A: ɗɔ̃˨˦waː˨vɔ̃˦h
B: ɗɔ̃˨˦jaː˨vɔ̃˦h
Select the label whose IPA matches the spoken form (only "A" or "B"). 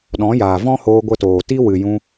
B